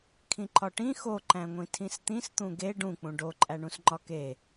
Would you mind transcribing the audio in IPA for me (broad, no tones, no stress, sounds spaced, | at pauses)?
kʰ ĩ ǃ ɒ ʈ ĩ x o ǃ æ̃ ŋʷ ĩ tʰ ĩ s t̪ ĩ s t̪ ũ ɡ e ɖ ũ k͡p ũ ɖ o ǃʼ æ ɳ ũ s ŋ͡ǃ ɒ k e